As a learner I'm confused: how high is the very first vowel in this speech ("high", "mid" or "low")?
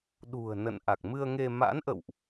high